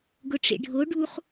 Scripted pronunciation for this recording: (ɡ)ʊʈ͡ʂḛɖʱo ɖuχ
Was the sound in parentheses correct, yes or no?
yes